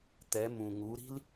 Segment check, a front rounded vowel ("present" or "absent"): absent